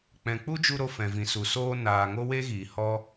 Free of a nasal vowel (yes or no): no